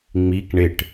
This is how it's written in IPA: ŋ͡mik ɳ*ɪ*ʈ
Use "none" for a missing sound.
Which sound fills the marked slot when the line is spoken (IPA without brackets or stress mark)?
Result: ɪ